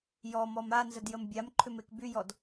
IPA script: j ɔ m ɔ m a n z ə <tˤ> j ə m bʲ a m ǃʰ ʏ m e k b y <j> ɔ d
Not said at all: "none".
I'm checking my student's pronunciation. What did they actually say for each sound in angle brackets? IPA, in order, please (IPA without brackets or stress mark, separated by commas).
d, j